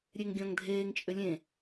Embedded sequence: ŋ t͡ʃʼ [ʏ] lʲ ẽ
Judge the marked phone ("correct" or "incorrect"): correct